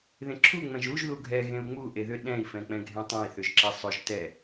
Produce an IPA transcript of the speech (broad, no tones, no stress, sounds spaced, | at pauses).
ð ẽ ǁʰ u ŋ͡m ɛ̃ ʒ u ʒ ð u ɡʱ ɛ ɣ ẽ u̯ ŋ͡m u ʔ e ð ʏ ɗ ɛ̃ i̯ f ɛ̃ k͡p ɛ̃ ɡʱ ẽ tˤ ɛ̃ i̯ θ ʏ ʒ ǁ ɛ sˤ ʏ ʒ t ɛ